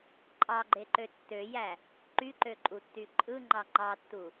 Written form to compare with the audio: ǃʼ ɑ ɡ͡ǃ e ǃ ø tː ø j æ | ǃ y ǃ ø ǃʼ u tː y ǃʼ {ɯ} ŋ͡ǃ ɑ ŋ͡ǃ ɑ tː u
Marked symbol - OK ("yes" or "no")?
yes